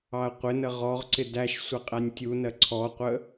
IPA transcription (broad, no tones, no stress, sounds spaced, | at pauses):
ɑ ɐ̯ qʷ ɪ n ə ʁ ɔ ʁ ǀ ɪ d æ ʃ sʷ ɪ qʼ æ nʲ tʲ u n ɜ ǀʰ ɔ qʷ ə